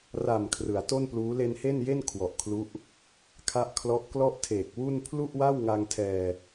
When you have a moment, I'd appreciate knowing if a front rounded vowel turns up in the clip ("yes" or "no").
no